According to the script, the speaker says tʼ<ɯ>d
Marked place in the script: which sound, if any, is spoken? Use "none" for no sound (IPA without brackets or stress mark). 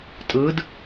ɯ